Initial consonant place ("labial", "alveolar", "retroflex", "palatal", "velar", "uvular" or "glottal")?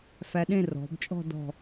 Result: labial